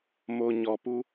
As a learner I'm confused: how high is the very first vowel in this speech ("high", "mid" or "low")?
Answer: mid